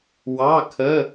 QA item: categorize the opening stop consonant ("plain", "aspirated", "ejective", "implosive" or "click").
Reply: aspirated